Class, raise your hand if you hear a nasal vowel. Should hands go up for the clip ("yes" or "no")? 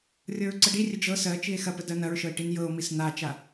no